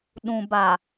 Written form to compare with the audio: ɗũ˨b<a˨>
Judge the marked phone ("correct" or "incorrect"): correct